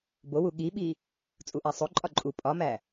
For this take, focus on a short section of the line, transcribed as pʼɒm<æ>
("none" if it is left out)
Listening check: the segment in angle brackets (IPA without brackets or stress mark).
æ